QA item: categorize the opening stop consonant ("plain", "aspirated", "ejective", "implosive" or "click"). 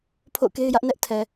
aspirated